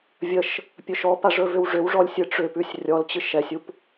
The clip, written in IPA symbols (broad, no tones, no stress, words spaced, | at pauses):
vʲəʃ | pʲɵʃɔpa ʐɵvʏwʐʏwʐɔlʲ sʲɨʈ͡ʂʏpʉsʲ rʲɔlt͡ɕɨ ʃɛsʲup